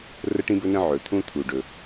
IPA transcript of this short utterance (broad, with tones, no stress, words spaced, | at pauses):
rə˥ʈĩ˥bɵ˥nə̃˥ ʕɵ˩t̪ʰũ˥t̪ʰu˩ ɖɵ˩